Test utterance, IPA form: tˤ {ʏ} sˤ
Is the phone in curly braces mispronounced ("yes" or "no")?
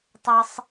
yes